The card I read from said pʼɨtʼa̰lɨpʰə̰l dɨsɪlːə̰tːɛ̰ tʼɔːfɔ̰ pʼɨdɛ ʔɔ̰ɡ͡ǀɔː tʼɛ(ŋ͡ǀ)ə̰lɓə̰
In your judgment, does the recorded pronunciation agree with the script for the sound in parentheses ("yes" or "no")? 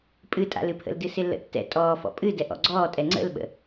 yes